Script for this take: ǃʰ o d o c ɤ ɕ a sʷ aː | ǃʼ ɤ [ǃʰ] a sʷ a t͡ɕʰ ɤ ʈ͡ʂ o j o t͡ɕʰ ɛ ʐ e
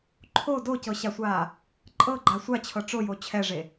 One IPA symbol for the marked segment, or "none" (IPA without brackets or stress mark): ɡ͡ǃ